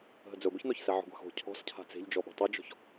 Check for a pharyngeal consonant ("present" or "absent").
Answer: present